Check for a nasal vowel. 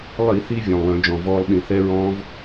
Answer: present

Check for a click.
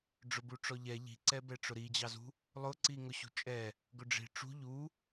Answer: present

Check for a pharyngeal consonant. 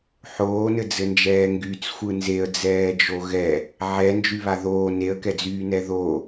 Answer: present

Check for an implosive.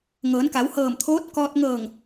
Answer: absent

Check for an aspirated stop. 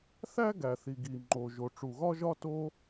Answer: absent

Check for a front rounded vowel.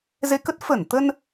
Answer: absent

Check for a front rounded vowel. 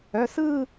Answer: present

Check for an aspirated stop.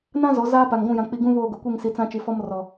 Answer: absent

